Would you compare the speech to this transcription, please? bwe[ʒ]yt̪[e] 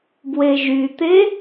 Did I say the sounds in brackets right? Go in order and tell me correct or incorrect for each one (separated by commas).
correct, correct